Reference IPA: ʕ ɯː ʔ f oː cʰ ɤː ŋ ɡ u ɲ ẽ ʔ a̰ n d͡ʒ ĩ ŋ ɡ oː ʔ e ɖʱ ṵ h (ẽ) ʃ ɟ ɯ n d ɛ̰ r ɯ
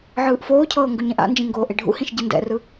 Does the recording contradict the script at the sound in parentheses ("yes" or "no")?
yes